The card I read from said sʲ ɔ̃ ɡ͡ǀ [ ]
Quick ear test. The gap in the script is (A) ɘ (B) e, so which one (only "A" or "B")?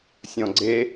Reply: B